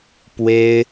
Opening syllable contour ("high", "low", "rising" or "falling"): high